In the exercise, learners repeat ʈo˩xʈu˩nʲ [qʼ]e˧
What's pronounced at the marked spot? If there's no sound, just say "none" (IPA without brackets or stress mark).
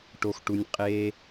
qʼ